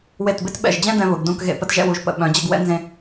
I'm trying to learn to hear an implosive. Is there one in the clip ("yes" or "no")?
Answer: yes